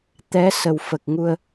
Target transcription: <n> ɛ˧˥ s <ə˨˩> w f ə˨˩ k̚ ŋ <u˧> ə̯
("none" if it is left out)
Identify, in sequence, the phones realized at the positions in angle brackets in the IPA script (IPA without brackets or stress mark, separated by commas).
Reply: t̪, ə˨˩, u˧